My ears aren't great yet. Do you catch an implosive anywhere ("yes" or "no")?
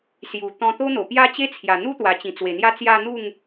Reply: no